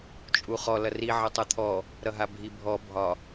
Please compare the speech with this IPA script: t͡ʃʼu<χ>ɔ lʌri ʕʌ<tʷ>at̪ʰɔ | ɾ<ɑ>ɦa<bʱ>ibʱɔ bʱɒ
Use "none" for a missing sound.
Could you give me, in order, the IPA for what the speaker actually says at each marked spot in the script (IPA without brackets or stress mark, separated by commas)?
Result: χ, tˤ, ʌ, bʱ